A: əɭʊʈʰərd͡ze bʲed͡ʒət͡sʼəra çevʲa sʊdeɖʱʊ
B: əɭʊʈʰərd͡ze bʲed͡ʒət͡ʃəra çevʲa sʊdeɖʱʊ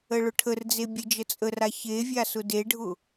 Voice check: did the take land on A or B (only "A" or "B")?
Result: A